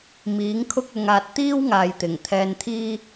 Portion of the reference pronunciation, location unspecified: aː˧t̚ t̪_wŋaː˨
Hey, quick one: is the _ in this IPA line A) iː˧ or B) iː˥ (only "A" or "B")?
B